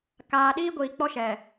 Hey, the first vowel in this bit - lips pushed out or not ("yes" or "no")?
no